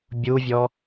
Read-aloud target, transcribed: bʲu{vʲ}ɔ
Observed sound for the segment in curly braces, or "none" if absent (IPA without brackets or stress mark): vʲ